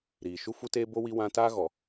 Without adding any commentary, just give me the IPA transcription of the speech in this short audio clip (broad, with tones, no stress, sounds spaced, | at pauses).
ɾ iː˨ ʃ u˦ f u˦ t eː˦ b o˦ w i˦ w ã˦ t aː˦ ɣ ɔ˨